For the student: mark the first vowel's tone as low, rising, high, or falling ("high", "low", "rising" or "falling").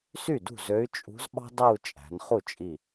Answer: falling